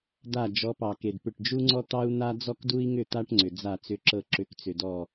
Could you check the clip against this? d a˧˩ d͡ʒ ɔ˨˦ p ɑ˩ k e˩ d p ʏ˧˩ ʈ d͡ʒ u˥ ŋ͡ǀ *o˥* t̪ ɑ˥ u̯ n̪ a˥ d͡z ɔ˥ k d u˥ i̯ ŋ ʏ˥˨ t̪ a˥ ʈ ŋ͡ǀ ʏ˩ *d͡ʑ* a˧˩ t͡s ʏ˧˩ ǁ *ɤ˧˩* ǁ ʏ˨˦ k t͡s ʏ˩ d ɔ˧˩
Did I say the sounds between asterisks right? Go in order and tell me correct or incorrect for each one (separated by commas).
incorrect, incorrect, correct